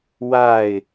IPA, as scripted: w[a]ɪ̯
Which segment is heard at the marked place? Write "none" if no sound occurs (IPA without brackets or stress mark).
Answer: a